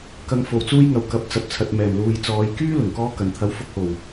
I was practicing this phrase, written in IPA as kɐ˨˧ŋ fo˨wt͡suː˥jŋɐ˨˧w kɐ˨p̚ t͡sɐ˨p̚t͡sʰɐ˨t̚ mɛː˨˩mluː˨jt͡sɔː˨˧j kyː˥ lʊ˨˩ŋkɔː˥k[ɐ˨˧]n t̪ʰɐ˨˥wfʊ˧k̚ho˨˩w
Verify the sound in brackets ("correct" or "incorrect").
incorrect